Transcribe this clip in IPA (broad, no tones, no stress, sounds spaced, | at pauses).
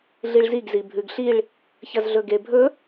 ɮ i ɭ z i ɡ z i bʱ ʉ ɡ ɬ i ɭ | ç ɐ z ɮ ɵ ɡ e bʱ ɵ